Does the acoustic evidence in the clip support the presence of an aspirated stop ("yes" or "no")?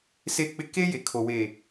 yes